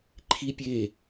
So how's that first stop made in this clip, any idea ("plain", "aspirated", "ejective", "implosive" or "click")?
click